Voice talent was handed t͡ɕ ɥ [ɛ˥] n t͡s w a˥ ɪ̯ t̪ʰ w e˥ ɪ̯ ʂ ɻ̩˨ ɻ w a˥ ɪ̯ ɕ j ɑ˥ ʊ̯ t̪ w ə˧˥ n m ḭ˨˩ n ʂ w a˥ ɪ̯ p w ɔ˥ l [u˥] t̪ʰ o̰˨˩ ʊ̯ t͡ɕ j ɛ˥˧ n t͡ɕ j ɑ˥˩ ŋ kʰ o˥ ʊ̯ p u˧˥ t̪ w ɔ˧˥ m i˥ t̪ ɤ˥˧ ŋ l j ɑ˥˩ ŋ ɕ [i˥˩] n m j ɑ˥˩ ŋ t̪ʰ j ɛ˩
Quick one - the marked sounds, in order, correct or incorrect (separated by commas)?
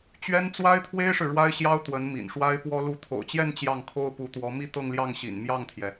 correct, incorrect, incorrect